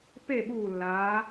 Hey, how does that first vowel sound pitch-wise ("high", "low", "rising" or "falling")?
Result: falling